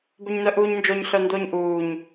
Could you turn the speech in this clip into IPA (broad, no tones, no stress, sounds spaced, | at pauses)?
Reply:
b ɵ ɲ n œ ʔ uː ɲ n d͡ʒ o ɲ ɬ œ n d o ɲ ʔ uː ɲ